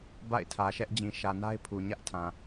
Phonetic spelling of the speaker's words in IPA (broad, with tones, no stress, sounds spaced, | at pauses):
b a̰˦˨ ɪ̯ tʰ ä˨ ʃ ɛ˦ ʔ d͡ʑ ĩ˨ ʃ ä˨ n a˦ ɪ̯ pʰ u˨ ɲ ä˦ ʔ tʰ ã˨